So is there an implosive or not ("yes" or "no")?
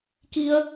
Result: no